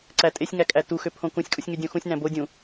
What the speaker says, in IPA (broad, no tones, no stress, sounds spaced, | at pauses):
ǀ æ tʼ e sʲ ŋ æ kʼ æ t u x ø pʰ õ k ũ sʲ kʼ u sʲ ŋ y dʲ õ x ũ sʲ n æ̃ b o dʲ ũ